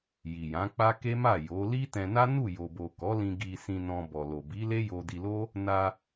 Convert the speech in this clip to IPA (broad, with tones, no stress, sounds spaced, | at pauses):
j i˨ j ã˨˦ k͡p a˦ k e˦ m a˦˨ j o˨˦ l i˦ t ɛ̃˧ n a˦ n u˦˨ j o˨ b o˨ k ɔ˨˦ l ĩ˧ ɡ i˧ s ĩ˧ n ɔ̃˧ b ɔ˨ l o˨ b i˨˦ l e˦ j o˧ d i˧ l o˦ | n a˧